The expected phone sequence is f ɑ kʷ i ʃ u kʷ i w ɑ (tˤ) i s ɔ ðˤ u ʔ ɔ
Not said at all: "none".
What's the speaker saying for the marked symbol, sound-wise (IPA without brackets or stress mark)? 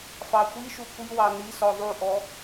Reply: n